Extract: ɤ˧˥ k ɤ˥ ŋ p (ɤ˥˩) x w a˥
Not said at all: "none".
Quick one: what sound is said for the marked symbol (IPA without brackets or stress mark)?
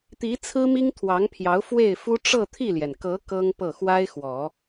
ɤ˥˩